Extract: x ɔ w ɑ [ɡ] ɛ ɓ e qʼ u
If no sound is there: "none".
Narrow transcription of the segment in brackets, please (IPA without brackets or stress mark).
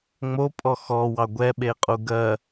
ɡʷ